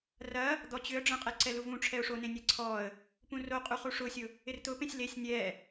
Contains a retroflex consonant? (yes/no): yes